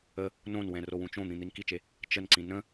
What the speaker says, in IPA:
ə | n õ n w ɛ̃ r o w ũ t͡ʃ õ n̪ ĩ n̪ i n k i t͡ʃ e | t͡ʃ ə n ǀ ĩ n ə̃

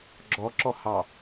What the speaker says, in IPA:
ɡ͡ǁ ɔ ǁ ɔ h ɑ

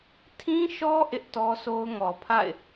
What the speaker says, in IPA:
tʰ ĩ˦ ʃ ɔ˦ ʔ ɪ˦ ʔ t ɔ˦ s o˦ ʊ̯ ŋ ɔ˨ pʰ a̰˦˨ ɪ̯

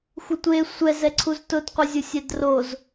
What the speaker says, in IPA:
xʷ ɪ tʷ e sʷ ɛ z ɛ ǀʰ u z t ʊ d qʷ ɪ zʲ ʊ sʲ ɛ d r o z

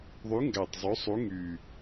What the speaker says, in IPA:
ðˤ y˨˥ ŋ ɡ æ˨˩ tˤ zˤ ø˨˥ sˤ u˨˥ ŋ y˨˩

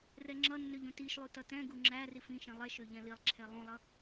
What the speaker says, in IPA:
r ɛ ŋ͡ǁ ʌ nː ø ʎ ũ t i ʃ lˠ u t ʌ t ɛ̃ ɡ u ŋ͡ǁ æ r i f ĩ ʃ ĩ lˠ ɛ ʃ ø ʎ ɛ̃ l i lˠ ǁʰ ɛ lˠ ũ lˠ ʌ

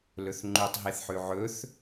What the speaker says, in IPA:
l ɵ θ ŋ͡ǃ ʉ tˤ ɦ e θ ħ ʉ ʕ ɵ θ

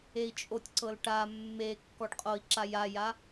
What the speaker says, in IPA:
e i̯ t͡ʃʼ o tʲ ǀ ɤ l ʈ a mː e kː ɔ ɖ qʼ o i̯ ǁ a j a j a

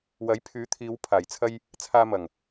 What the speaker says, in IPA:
w ɐ˨˥ j pʰ yː˨˥ t̪ʰ iː˨˧ w pʰ aː˨˩ j t͡sʰ ɐ˧ j | t͡sʰ aː˧ m ɐ˨˩ ŋ

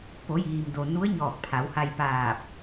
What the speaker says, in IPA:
p o˩˧ j iː˩ m d o˩ n u˧˥ ə̯ ɲ ɔː˧˩ k̚ pʰ a˩˧ w h a˧ j p aː˧˩ p̚

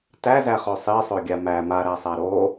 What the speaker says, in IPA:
t æ z æ χ o sˤ i sˤ o ɡʲ a m æ m a ɾ æ sˤ æ ɾ o

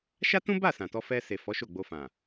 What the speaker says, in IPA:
ʃ a˦ t ũ˦ b a˦˨ s ã˨ t ɔ˧ f ɛ˧ s e˨ f ɔ˨˦ ʃ o˦˨ ɡ͡b o˧ f ã˨

